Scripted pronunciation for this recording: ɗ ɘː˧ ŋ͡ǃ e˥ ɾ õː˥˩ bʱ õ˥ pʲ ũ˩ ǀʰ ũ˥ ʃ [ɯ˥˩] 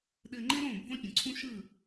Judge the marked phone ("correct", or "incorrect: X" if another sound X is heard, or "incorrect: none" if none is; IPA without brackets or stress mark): correct